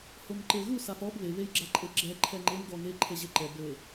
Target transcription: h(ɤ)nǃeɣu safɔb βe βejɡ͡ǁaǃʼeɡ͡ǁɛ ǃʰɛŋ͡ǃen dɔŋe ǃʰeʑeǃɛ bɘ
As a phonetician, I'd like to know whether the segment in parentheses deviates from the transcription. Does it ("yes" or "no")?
yes